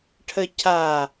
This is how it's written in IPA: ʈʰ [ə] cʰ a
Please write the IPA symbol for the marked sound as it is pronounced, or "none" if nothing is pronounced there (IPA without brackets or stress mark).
ə